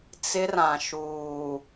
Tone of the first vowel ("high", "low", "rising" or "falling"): high